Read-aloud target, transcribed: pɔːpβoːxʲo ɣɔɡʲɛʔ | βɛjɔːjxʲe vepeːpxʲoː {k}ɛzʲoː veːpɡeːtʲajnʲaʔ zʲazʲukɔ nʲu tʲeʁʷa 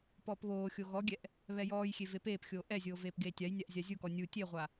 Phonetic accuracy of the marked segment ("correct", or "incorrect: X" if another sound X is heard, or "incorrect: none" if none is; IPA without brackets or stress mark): incorrect: ʔ